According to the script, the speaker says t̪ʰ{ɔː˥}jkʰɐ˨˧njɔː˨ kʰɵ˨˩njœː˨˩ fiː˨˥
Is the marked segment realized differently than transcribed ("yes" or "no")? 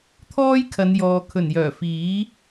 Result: no